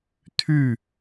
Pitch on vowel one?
falling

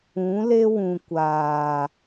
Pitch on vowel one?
rising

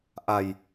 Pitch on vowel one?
low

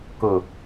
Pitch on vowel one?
low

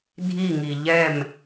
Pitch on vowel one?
falling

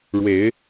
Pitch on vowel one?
rising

